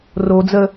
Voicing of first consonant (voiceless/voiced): voiced